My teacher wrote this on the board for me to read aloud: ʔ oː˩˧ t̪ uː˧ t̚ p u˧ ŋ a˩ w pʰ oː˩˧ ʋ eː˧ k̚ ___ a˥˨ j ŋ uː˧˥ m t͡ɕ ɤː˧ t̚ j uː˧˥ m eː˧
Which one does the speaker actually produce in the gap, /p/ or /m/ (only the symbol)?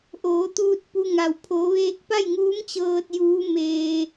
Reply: p